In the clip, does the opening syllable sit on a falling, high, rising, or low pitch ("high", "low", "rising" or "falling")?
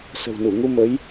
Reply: low